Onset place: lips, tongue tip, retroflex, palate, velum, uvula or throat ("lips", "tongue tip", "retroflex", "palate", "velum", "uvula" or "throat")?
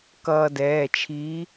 velum